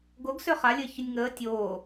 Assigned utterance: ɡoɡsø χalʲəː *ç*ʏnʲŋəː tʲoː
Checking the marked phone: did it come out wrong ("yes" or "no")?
no